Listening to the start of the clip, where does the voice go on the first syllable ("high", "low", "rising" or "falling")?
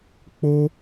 high